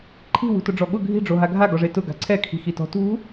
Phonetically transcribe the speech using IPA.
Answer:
ǃʰi̤ wṳtʊɖ͡ʐɔɠʊ ɡʱi̤ɖ͡ʐo ɦaɡʱaɡɔʐe tʊ ɡa̤ǀʰɛkʰi̤ xitɔ̤tṳ

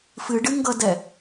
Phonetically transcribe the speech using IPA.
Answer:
fɨɖɨŋɡʌdɛ

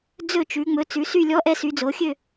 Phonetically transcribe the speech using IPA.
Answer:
d͡zɵ˦˨t͡ʃʉ˩˧ ŋ͡mɵ˩˧t͡sʉ˩˧sy˦˨lʲɔ˧˥ ʔɛ˧˥sy˩˧ d͡zo˩˧xʲø˦˨

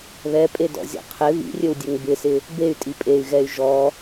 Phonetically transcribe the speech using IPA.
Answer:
βɛpʼedɔ̰zʲɔ̰ qʰɪ βḭrʲɵwdʲɵŋ bɪsɪ | bey̯tʼi pʼey̯ɣɛy̯ ʒɔ

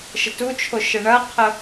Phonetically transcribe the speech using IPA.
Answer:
ʃətut͡ʃʰo ʃəɳɐqʰə

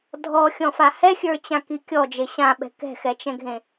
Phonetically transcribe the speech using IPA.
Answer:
dʱɔxʲɔ̃fa hɛxʲə˞t͡ɕãki kʲɔd͡ʒe ɕãɓɛ̤ kɛ̤xɛt͡ʃɛ̃ɡʱẽ

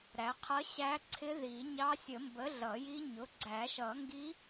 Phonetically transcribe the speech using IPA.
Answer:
ɾæ˩˥qʰʌ˧˥ ɕæ˧˥ǀʰɪ˧˥ði˨˩˦ɲɑ˧˥ sʲə˨˩˦mbə˩˥ ɮʌ˨˩˦ji˧˥ɲʊ˩˥ ɡ͡ǀæ˨˩˦ʃʌ˨˩˦ŋɡi˧˥

